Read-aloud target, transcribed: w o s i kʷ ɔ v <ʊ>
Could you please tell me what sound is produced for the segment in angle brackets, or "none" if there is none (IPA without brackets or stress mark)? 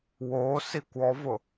ʊ